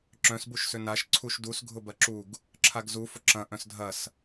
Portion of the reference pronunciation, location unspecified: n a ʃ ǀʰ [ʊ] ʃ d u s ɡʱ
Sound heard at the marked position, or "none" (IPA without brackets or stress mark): u